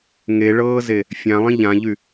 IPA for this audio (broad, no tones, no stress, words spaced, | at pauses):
ŋeɭɤːze | fʲãlˠĩ ʎãʎy